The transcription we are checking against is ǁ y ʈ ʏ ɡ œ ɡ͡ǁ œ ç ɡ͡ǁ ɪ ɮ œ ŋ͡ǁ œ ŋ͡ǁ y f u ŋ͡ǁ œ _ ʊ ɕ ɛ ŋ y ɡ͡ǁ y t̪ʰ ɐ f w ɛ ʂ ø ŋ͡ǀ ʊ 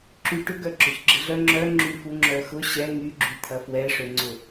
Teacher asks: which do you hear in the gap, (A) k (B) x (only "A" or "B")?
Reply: B